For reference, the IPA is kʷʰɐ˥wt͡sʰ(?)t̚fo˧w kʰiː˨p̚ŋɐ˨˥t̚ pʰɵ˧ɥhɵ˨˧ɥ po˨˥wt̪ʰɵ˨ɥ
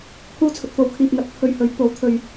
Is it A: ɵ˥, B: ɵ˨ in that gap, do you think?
B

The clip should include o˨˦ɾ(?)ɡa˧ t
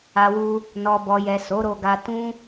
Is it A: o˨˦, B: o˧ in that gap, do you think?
B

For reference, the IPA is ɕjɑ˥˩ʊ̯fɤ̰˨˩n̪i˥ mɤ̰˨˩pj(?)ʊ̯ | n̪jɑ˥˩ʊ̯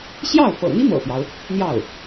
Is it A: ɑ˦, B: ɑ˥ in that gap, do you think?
A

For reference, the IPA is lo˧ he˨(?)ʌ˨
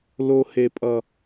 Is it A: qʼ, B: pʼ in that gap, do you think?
B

